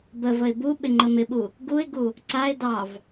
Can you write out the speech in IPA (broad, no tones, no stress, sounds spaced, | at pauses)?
b ə v ə ɪ̯ b u ɓ ɪ ŋ͡ǃ ə m ɪ ɓ u | ɡ u ɪ̯ ɡ u | ǀ a ɪ̯ d ɑ v